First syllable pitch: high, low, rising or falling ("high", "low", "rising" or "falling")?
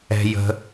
low